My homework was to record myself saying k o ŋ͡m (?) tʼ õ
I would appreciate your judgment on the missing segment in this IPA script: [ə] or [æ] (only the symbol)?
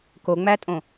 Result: æ